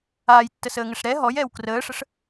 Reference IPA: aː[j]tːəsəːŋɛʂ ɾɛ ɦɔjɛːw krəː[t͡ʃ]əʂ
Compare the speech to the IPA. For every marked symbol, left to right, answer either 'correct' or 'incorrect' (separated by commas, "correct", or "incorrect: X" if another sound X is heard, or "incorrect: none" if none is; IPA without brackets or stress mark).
correct, incorrect: ʂ